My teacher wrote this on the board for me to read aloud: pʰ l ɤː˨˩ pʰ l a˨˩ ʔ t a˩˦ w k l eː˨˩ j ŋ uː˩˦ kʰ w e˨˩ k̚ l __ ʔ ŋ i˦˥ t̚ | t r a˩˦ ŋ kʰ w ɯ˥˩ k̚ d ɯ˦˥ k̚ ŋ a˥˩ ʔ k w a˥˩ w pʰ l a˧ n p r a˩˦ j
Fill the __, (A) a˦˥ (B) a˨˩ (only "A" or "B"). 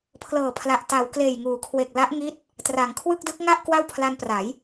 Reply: A